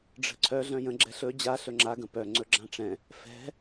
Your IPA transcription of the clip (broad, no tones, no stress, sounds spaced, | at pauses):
ɖ͡ʐ ə̤ ǀʰ œ ɮ œ̃ j ə̃ ɡ͡ǁ ɛ ɬ ɵ d͡ʑ a ɬ ɵ ŋ͡ǁ a ɡ ə̃ p œ ŋ͡ǀ ɵ ɡ͡ǁ ã ʈ͡ʂ ɛ̃ | f ɛ̤